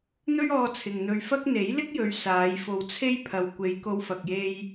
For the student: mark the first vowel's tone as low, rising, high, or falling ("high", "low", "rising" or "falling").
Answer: high